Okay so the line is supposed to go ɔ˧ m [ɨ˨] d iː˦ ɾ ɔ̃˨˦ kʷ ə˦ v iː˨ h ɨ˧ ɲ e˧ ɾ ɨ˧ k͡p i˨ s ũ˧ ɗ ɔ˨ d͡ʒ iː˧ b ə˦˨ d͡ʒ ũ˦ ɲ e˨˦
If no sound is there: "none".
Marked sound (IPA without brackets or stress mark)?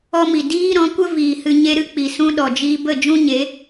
i˨